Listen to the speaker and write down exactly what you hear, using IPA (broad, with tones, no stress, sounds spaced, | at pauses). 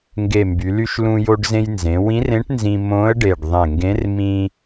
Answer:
ŋ ɡ e˧˩ m b y˩˧ l y˧ ʃ l ũ˧ j o˧ ɖ z ẽ˧ j n z ẽ˩˧ w ĩ˧˥ r ẽ˧˥ ʈ n z ĩ˧ m õ˧˥ ə̯ ɖ e˧˩ ɖ ðˤ ẽ˧˩ ŋ ɡ ẽ˧˥ r m ĩ˧